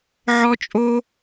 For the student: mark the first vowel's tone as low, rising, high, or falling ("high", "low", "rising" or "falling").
high